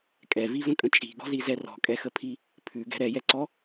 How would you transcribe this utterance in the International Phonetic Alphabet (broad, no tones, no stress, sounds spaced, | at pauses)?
kʼ ɛ v i v ə̃ kʼ ə̃ t͡ʃʼ i̤ ɡ ɔ̤ z i z ɛ r ɔ̤ kʼ ɛ x ə pʰ i | pʰ ʉ ɡ ɛ̤ ɾ ɛ j ɛ ǀ ɔ